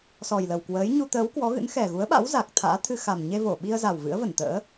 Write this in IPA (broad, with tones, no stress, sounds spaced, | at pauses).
s ɔ˨˩ j l ə˨˩ w k w əː˨˦ j ɲ u˧ t̪ əː˨˦ w k w ɔ˨˦ ɣ ɨ̰˧˥ n x ɛ˨˩ ɣ u˨˦ ə̯ ɓ a̰˧˥ w z a˨˩ k̚ t̪ʰ a̰ː˧˥ t̪ʰ ɨ˧ x a˨˩ m ɲ e˧ v o˧˩ ɓ i˧ ə̯ z a˨˩ w v ɨ̰˧˥ ə̯ v ə˧˩ n t̪ ə̰ː˧˥